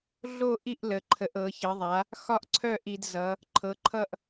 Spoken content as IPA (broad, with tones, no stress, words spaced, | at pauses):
ɮo˥˨ ʔi˥˨ʔ lə˩˧ǃʰə˩˧ʔ ɤ˩˧çə˩˧ðˤa˩˧ | xɒ˥˨ʔǀʰœ˥˨ʔi˩˧dzʌ˩˧ | ǃʰɤ˩˧ǃʰʌ˥˨ʔ